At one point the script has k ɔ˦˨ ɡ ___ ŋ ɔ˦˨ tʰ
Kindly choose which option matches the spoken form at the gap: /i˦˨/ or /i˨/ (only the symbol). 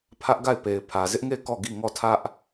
i˦˨